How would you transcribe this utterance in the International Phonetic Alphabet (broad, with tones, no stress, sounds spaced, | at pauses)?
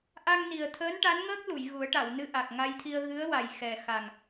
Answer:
ʔ a˧ ŋ n i˨˩ ə̯ t̪ʰ əː˧˥ n ʈ a˧˥ n ŋ əː˦˥ k̚ l u˨˩˨ j ɣ u˨˩˦ ə̯ ʈ a˨˩˨ w n ɨ˧ ʔ a˨˩ k̚ ŋ a˧ j t̪ʰ i˧ ə̯ ɣ ɨ˧˥ ə̯ w a˨˩ j x ɛ˨˩ x a˨˩ ŋ